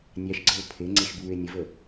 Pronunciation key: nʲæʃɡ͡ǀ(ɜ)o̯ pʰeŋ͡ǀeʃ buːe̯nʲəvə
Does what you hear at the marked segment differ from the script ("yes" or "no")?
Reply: no